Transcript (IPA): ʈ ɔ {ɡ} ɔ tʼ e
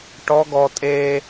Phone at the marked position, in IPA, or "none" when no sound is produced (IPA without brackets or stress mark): ɡ